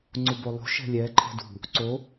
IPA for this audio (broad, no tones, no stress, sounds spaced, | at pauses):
ŋ͡ǀ u b o lˠ ṳ ʃ ɛ̤ lʲ ɛ ǃʰ ɛ̤ d ṳ | ǀ o